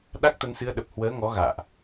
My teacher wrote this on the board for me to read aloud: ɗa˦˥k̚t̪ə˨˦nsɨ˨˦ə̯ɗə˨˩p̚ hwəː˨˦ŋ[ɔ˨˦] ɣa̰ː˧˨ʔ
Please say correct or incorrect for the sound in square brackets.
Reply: correct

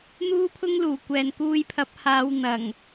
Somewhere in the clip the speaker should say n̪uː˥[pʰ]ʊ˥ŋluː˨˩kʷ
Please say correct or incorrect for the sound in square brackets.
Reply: correct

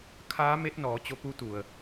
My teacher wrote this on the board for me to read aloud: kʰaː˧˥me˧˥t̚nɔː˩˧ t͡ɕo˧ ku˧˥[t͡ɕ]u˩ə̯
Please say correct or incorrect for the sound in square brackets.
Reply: incorrect: t̪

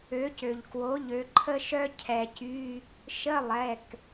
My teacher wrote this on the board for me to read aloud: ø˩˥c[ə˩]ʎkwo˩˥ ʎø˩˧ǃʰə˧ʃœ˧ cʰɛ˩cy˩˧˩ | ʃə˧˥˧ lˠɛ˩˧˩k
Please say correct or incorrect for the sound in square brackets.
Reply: incorrect: ø˩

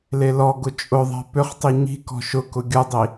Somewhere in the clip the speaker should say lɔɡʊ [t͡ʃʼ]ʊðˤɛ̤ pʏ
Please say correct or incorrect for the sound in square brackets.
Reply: correct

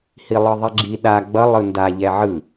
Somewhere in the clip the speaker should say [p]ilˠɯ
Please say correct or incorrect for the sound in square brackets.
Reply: incorrect: h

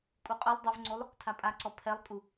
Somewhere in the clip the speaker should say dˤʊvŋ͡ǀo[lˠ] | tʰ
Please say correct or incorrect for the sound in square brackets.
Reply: correct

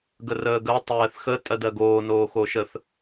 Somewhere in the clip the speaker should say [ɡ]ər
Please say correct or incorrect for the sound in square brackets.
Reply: correct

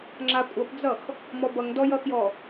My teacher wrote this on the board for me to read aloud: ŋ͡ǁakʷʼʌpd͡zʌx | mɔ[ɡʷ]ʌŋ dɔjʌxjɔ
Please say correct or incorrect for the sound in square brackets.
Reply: incorrect: b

